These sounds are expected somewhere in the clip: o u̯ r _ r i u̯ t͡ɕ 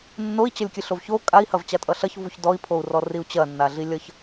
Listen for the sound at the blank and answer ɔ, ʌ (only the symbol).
ɔ